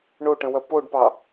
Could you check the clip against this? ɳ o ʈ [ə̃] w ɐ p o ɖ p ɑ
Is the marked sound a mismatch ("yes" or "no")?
no